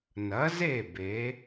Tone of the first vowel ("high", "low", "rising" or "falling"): rising